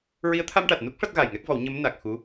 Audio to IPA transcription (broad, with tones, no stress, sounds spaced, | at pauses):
ɹ i˧˥ ə̯ t̪ʰ a˧ m ʈ a˨˩ t̚ n u˦˥ k̚ ʂ a˦˥ t̚ ɣ a˨˩ j ŋ ɛ˦˥ k̚ v ɔ˨˩˦ w ɲ ə˧˥ m n a˨˩ k̚ x u˧˥